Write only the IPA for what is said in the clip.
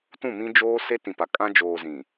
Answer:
t ũ˦˨ m ĩ˦ d͡ʒ oː˦ s e˦ t ĩ˨ p a˨ kʼ ã˦ d͡ʒ oː˨ z ĩ˨

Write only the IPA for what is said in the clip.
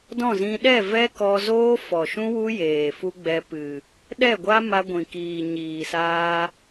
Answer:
d ɔ̃˦˨ z ĩ˧ ɗ ɛ˦˨ v ɛ˦ k ɔ˧ z oː˦ f ɔ˨ ʃ ũ˦ w u˦ j eː˨ f u˦ ɡ͡b ɛ˧ p ɨ˨ | ɗ ɛ˦˨ ɡʷ a˦ m a˧ ɡʷ ĩ˨ k iː˨ ɲ iː˨ s aː˧

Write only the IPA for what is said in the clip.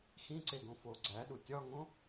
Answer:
x ĩ ǀ e ɡ õ f o ɡ͡ǀ æ ɗ u tʲ ɒ ŋ õ

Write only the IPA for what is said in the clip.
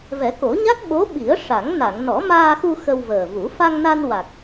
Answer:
v ɛ˨˩˦ k o˨˩˦ ɲ a˦˥ k̚ ɓ o˧˥ ɓ i˨˩˦ ə̯ ʂ a˨˩˦ ŋ n a˨˩˨ ŋ n ɔ˨˩˦ m aː˧ x u˧ x ə˧ w v əː˨˩ v u˨˩˦ f a˧ ŋ n a˧ n w a˨˩ k̚

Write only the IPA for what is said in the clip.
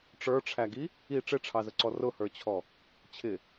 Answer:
ʈ͡ʂ ə˞ ʈ͡ʂʰ æ ɡ i | i ʈ͡ʂ ɪ ʈ͡ʂʰ ɑ z ə ǀ ɔ r ʊ h ə˞ t͡ɕʰ ɔ | t͡ɕʰ ɪ

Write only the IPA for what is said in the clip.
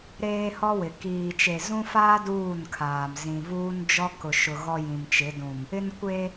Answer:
ɾ eː˦ h ɔ˦ w ɪ˨ k iː˨ t͡ʃ e˨ z ũ˦ f aː˦ d uː˦˨ n kʰ aː˨ m z ĩ˨ v uː˦ n d͡ʒ ɔ˦ k ʊ˨ ʃ ʊ˨ ɣ ɔ˦ j ĩ˨ m t͡ʃ ɪ˨˦ d ũ˨ m | ɪ˦ n kʷ e˦

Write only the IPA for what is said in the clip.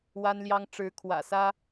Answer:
w a˥ n l j ɑ˥ ŋ ʈ͡ʂ ɻ̩˧˥ kʰ w ä̰˨˩ s ä˥

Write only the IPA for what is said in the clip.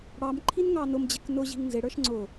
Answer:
ɽ ɑ m ǃʰ i n ŋ ɑ n ʊ m d͡ʑ ɛ k n ʊ ʑ i̤ ŋ n z ɪ ɽ ə˞ ʃ ŋ͡ǀ ʊ

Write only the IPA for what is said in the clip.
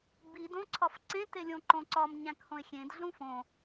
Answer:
b i d õ ǀʰ ɒ f ǀ ẽ t e lʲ õ ǃ õ ǀ ɒ m ɲ æ̃ k h õ ɪ̯ xʲ ẽ d ɮ ũ f õ

